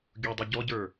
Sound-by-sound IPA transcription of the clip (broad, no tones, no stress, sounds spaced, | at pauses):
ɡʲ u dˤ u ɟ ɔ ɟ ə˞